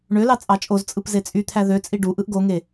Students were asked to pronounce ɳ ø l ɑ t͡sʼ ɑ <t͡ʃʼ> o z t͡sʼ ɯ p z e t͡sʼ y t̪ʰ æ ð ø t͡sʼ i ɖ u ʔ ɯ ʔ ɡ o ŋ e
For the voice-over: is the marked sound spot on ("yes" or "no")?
yes